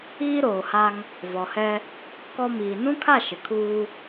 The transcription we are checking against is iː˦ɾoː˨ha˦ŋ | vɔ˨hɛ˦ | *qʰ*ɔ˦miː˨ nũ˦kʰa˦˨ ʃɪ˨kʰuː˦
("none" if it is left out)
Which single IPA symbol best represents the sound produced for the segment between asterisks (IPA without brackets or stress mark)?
k